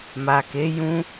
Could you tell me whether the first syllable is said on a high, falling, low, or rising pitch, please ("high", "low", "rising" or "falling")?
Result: low